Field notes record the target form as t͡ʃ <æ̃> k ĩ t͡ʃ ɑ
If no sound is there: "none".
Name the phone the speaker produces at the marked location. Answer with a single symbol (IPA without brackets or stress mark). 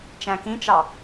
æ̃